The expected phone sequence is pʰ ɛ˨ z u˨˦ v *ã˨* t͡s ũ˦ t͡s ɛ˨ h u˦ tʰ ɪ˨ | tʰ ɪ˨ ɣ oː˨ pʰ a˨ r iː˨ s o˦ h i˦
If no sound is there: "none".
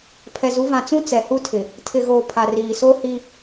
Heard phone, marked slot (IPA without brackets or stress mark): ã˨